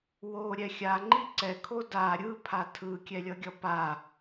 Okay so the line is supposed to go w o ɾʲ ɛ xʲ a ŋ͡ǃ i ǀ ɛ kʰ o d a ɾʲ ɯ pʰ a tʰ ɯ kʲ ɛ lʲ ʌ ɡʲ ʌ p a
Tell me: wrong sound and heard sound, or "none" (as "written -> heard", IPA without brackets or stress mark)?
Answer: none